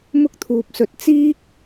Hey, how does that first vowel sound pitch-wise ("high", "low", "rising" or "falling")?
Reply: high